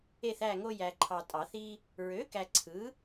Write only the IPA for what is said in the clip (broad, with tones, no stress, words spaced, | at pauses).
e˦˨θæ˦˨ŋo˦ jæ˨ǃʰɑ˨tʼɑ˨˩˦θ i˦ | ɹø˩˥ kæ˨ǀʰɯ˩˥